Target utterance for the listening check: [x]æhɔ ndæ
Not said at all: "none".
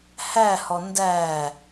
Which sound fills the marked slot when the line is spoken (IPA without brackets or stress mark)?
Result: h